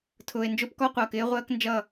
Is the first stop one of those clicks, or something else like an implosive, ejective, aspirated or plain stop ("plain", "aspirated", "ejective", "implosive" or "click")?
aspirated